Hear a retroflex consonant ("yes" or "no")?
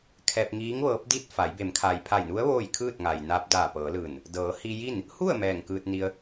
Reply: no